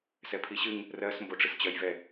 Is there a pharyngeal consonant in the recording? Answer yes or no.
no